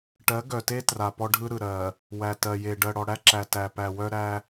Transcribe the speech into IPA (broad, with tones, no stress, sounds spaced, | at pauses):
ʈ ɜ˨˦ ɡ œ˨ t e˦ t r a˨ p ɔ˦ ɖʱ ɯ˦ ɾ ɯ˨ ɾ ɜ˨ | w æ˨ t ɜ˨ j e˨ ɖ ɜ˨ ɽ ɔ˨ ɽ æ˦ ǁ æ˨ t æ˨ p æ˨ w œ˦ ɾ æ˦